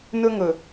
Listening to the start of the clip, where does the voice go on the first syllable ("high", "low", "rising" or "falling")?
high